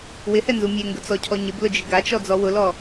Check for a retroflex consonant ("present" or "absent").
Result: absent